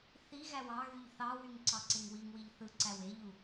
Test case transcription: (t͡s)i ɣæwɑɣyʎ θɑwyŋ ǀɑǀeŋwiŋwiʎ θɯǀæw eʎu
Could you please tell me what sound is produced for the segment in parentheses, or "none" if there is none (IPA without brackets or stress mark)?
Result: θ